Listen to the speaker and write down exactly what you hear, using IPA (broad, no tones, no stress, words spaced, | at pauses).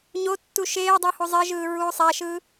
ɲotːu ʃeːdˤu huzˤeʒɯː ɹuːsˤaʃɯː